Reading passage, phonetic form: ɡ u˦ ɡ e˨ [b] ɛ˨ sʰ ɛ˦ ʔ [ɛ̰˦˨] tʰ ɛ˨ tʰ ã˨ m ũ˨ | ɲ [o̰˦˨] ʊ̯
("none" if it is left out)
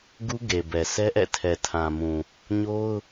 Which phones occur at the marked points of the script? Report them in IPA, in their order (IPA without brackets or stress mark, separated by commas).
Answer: b, ɛ̰˦˨, o˦